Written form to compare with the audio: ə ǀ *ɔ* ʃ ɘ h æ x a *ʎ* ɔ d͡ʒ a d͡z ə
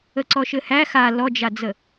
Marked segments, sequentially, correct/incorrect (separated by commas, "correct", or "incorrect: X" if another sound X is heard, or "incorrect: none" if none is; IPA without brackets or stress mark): correct, incorrect: l